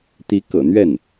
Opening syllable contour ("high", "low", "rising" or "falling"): rising